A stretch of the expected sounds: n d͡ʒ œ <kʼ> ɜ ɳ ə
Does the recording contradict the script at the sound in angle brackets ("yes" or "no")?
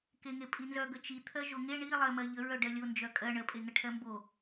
no